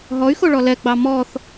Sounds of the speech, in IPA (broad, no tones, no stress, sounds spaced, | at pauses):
ɦ ɔ y̯ x o ɭ ɔ l ɛ ɡ͡b ɑ m ɔ θ